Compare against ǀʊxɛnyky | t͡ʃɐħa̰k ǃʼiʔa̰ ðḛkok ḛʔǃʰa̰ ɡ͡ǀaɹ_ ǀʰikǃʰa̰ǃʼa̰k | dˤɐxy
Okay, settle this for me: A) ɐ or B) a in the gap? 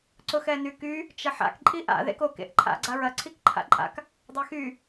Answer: A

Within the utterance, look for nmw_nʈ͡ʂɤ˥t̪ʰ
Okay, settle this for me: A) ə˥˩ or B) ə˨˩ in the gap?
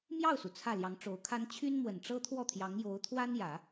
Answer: B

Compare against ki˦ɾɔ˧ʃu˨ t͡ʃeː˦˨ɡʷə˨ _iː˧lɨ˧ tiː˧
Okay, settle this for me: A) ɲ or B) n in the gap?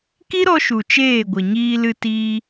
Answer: A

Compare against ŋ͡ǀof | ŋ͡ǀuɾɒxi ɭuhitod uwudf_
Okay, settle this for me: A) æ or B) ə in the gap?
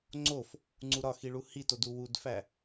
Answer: A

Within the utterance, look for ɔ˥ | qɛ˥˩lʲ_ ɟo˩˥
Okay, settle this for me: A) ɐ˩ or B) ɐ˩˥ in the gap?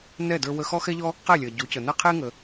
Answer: A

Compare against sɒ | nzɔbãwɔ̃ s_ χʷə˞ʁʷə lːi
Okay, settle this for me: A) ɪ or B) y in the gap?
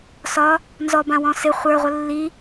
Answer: A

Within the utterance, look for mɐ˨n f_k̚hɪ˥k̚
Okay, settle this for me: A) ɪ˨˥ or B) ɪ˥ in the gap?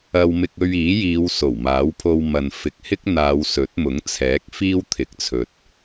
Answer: A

